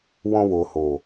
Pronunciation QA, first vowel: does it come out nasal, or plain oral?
nasal